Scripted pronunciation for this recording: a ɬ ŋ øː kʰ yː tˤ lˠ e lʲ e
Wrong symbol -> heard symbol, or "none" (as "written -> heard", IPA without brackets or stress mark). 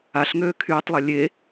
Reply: none